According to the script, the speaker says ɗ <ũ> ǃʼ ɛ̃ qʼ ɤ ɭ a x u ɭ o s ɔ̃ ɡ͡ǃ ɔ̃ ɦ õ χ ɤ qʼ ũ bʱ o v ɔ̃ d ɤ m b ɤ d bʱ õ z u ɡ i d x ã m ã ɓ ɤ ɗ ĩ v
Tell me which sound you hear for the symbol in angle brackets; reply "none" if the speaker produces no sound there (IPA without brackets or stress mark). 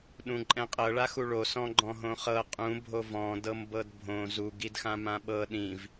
ũ